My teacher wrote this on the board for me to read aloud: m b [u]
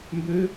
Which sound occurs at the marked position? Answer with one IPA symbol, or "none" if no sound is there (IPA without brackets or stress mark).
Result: ø